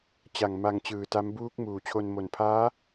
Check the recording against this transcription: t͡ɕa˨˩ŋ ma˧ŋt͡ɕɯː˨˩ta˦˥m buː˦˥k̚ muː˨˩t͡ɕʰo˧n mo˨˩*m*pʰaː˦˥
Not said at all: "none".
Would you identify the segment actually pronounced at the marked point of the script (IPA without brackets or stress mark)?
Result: n